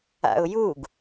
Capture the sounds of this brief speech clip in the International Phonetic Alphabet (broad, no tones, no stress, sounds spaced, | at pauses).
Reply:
a̰ ʊ̯ j u ɡ